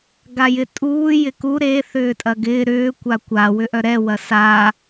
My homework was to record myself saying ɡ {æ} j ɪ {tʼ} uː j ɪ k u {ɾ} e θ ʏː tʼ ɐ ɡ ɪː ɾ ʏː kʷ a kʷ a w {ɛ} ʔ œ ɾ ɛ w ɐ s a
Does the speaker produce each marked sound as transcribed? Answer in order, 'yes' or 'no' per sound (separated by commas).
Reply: no, yes, yes, no